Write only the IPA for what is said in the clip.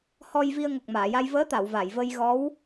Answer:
h ɔ˧ j v i˧ ə̯ ŋ o˨˩ k̚ m aː˨˩˨ j a˧ j v əː˧˥ t̪ a˨˩˨ w v a˨˩˨ j v ə˧ j ɣ ɔ˧˥ w

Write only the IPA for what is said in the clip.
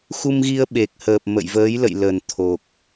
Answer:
x u˧ m ɣ i˧ ə̯ ɓ e˨˩ k̚ h əː˨˩ p̚ m ə̰˧˨ j v əː˨˦ j l ə̰˧˨ j l ə˧˩ n t̪ʰ o˨˩ k̚

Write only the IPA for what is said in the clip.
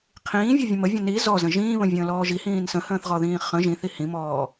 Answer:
qʰ ĩː vʲ ɤ vʲ ə̃ m ə vʲ ə̃ n i z ɔ z ə̃ ʒ ĩː β ə̃ vʲ ə̃ː l ɔː ʒ i h ĩː n s ə̃ h ə̃ː θ ʁ ɔ ð ĩː χ ə̃ ʒ ĩ θ i h ĩ m ɔː

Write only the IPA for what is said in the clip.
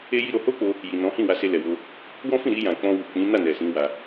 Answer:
e˦ j i˦ ɾ o˧ h o˦ k͡p o˧ | j i˨ n ɔ̃˨˦ h ĩ˦˨ w a˧ s e˧ l ɛ˨ w o˧ | w ɔ̃˦ f ĩ˦˨ ɾ i˧ j ã˨ k͡p ɔ̃˧ w u˨ k͡p ĩ˨˦ n a˦˨ n ɛ˨ s ĩ˨˦ w a˧

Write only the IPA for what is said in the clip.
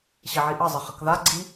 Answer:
ɕ i ʕ i ʔ ə zˤ ə χ ə k ð a ɡ͡ǀ i

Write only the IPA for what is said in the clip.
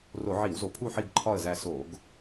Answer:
r o˧˩˧ ʕ i˧˩˧ w z o˩˧ pʰ u˦˨ ħ i˦˨ ɡ ǃʰ ɒ˦˨ ə̯ z æ˦˨ s o˧˩˧ ɡ

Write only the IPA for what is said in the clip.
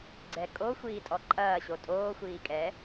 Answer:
ɡ͡ǀ ɛ kʼ o xʷ iː tʼ ɔ ǃʼ ɐː ɕ o tʼ oː xʷ iː kʼ ɛ

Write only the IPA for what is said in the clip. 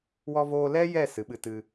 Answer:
w ɔ˧ v oː˧ l ɛ˦ j ɛ˦˨ s ɨ˨˦ ɓ ɨ˧ t ɨ˧

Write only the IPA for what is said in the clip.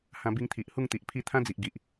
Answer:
h ã˧ b i˧ ŋ t̪ʰ i˨ ʔ h u˥˧ ŋ t̪ i˨ ʔ pʰ i˥˧ t̪ʰ ã˦ d͡z i˨ ʔ ɡ i˨ ʔ

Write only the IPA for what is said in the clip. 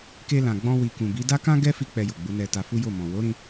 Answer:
k e˧ l ã˨ ɡ͡b ɔ̃˧ w i˨ k ũ˨ b i˨˦ d a˦ k ã˦ ɡ ɛ˦ f i˧ k͡p ɛ˧ j o˨ ɡ͡b u˨˦ n ɛ˧ t a˧ f u˦ j o˦˨ m ɔ̃˨ w o˨˦ ɾ ĩ˧

